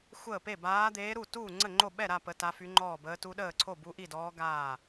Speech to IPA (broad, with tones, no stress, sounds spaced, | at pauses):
xʷ əː˥˩ p e˥˩ b aː˧˥ d̪ eː˧˥ ɾ u˥˩ t uː˥˩ ŋ͡ǀ ə˥˩ ŋ͡ǃ o˥˩ ɓ ɛ˥˩ ɾ a˥˩ p ə˧˥ t a˧˥ f y˧˥ ŋ͡ǃ ɔː˥˩ b əː˧˥ t u˧˥ ɗ əː˥˩ ǀʰ o˥˩ b u˧˥ ʔ i˥˩ d ɔː˧˥ ɡ aː˥˩